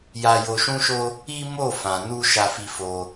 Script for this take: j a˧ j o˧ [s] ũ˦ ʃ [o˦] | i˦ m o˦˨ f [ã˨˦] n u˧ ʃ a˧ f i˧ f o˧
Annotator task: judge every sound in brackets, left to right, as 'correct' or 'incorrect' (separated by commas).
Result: incorrect, correct, incorrect